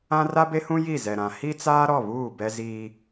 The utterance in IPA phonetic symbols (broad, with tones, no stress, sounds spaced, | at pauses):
ã˦ r a˦ b e˦ h ũ˦ j i˦˨ z ɛ˨ ɾ ã˨ h i˦ t͡s aː˦ ɾ ɔ˦˨ β uː˦˨ b ɛ˦ z iː˦